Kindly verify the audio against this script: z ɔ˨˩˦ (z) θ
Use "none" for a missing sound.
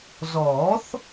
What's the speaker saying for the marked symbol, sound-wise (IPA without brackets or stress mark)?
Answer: none